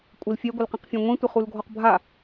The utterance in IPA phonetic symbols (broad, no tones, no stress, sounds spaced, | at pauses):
kʷʼ ɪ l fʲ ɛ ɡʷ ɪ l q ɛ̃ q fʲ ã ŋʷ ĩ tʷ ɪ χ u l ɡʱ ɔ q bʱ a